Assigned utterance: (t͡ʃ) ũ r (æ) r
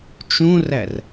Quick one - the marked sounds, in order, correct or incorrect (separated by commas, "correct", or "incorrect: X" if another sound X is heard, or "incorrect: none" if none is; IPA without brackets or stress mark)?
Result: correct, correct